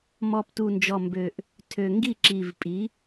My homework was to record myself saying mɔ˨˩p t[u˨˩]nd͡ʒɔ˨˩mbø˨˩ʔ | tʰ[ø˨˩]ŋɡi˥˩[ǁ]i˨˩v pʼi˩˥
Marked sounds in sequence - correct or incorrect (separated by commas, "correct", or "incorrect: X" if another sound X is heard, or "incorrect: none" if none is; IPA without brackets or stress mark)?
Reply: correct, correct, correct